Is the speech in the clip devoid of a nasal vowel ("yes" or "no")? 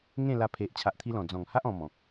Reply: no